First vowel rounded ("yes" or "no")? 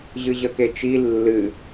no